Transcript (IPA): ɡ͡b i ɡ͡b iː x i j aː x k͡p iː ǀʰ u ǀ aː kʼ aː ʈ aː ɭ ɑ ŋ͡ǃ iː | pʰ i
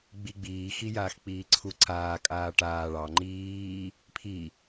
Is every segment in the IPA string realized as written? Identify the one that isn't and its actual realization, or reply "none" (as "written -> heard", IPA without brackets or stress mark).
none